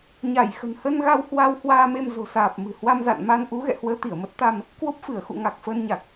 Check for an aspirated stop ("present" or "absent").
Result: absent